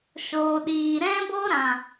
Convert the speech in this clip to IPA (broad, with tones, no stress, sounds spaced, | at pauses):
ʃ oː˨ ɗ iː˨ ɾ ɛ̃˦ b o˦ ɾ ã˨